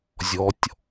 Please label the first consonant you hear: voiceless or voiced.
voiced